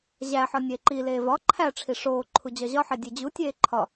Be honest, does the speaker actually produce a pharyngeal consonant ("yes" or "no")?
yes